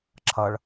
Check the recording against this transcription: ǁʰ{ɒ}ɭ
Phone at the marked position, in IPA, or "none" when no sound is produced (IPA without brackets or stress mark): ʌ